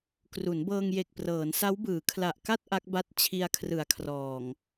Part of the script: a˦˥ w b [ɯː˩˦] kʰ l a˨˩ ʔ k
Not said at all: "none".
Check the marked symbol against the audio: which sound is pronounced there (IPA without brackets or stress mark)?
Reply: ɯː˩˦